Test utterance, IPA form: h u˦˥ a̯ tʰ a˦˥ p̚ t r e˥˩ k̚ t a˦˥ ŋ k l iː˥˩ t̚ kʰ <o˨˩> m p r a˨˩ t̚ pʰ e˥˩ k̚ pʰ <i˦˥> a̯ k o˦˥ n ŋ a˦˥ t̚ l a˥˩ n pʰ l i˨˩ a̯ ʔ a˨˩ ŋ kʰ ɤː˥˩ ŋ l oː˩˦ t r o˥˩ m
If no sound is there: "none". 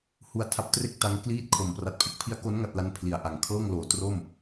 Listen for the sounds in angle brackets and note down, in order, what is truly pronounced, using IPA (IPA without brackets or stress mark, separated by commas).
o˨˩, i˦˥